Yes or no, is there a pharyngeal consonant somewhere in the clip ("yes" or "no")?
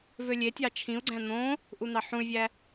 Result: yes